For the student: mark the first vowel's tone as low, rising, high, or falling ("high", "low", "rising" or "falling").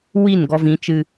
falling